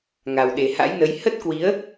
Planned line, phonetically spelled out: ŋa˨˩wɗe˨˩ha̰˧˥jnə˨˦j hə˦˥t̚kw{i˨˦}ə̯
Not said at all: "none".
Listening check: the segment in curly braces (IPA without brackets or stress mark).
i˨˦